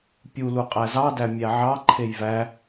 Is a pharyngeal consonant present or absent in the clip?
present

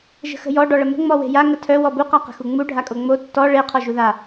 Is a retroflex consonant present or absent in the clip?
present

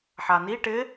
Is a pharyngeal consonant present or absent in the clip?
present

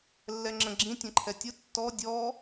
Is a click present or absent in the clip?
present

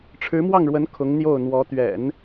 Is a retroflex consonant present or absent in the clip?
present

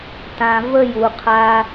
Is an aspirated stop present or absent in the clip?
present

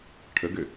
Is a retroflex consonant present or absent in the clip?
present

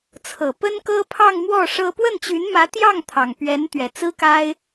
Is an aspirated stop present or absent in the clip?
present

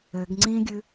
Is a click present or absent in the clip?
present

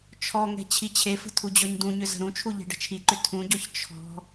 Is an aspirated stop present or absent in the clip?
present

